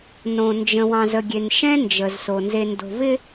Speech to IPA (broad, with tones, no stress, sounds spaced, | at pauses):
n õ˨ n d͡ʒ ə̃˨ w ɑ̃˨ z ə˨ ɡʲ e˨ n ʃ ɛ̃˦ n d͡ʒ ə˨ z s o˨ n z e˨ n d o̤˨ v ɪ˦